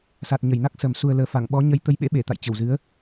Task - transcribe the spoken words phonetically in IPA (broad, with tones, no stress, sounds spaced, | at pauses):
s a˨˩ t̚ ɲ ə˧˩ j n a˦˥ k̚ s ə˨˩ m s u˨˩ ə̯ l əː˨˩ f a˧˩ ŋ ɓ ɔ˨˦ ɲ ə˧ j t̪ ə˨˦ j ɓ ḛ˧˥ ɓ e˧˩ t̪ a̰˧˨ j t͡ɕ ə˧˩ w z ɨ˨˦ ə̯